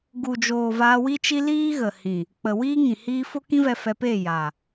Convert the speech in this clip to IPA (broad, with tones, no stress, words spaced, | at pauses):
ɡu˨d͡ʒoː˨ vaː˧wi˦t͡ʃi˦ liː˦ɣə˨hĩ˨ | k͡pə˨wiː˦ŋĩ˨ hiː˧fo˦kĩ˦vɛ˧ fɛ˧peː˦˨jaː˨